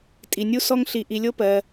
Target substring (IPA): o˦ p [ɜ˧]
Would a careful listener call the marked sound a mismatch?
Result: no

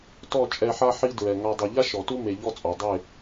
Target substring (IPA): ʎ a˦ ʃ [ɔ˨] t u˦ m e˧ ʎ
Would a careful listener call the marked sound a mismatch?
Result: no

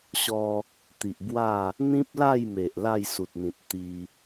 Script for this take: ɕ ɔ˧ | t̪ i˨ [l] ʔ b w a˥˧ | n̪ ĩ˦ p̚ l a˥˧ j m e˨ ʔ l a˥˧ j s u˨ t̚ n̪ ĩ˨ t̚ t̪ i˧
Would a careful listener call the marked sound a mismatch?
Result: yes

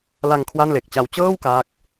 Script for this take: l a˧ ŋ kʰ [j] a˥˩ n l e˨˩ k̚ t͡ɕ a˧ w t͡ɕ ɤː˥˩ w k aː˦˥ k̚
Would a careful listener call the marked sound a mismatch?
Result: yes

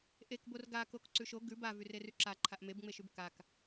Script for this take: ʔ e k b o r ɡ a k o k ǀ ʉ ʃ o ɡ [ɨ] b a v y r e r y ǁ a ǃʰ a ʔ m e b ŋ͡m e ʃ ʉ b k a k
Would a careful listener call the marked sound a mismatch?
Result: yes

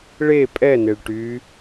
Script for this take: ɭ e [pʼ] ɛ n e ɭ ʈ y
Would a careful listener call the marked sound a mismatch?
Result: no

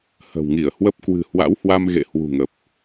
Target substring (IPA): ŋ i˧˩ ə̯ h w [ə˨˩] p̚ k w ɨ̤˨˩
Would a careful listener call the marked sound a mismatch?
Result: yes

